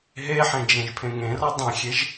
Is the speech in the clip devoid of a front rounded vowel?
yes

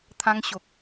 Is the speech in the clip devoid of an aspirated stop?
no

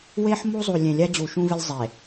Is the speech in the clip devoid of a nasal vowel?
no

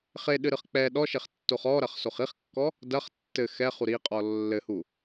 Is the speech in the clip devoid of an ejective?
no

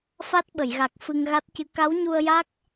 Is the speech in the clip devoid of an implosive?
no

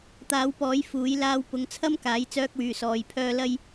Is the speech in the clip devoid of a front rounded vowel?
no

